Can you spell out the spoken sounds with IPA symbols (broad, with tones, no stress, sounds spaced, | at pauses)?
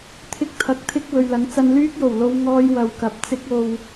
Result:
t̪ʰ ɪ˧ k̚ t̪ʰ ɐ˨ k̚ t̪ʰ ɪ˧ k̚ w ɵ˨ ɥ l ɐ˨˥ ŋ t͡s ɐ˧ n l yː˥ k̚ j o˨˩ w l o˧ w ŋ ɔː˧ j w ɐ˨ w k ɐ˨ p̚ t͡s ɪ˧ k̚ o˨ w